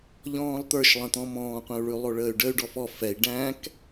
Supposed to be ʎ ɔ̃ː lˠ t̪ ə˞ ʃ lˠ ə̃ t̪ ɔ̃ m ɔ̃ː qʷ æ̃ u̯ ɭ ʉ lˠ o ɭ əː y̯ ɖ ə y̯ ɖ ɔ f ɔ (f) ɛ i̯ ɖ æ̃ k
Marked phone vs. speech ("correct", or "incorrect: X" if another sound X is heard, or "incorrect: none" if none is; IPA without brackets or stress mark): correct